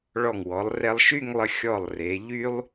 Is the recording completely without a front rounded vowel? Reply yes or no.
no